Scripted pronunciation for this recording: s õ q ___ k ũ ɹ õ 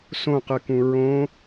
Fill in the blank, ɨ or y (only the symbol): ɨ